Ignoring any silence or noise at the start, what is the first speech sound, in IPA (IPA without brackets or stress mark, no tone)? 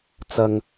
t͡s